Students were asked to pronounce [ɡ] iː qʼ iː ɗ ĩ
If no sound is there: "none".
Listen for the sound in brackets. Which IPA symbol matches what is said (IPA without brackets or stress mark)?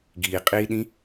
ɡ